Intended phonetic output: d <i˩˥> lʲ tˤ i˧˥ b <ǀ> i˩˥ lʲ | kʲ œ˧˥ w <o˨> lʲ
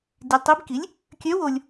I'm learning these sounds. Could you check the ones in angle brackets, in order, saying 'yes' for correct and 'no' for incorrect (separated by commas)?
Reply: no, no, yes